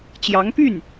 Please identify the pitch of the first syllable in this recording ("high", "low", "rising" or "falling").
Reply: rising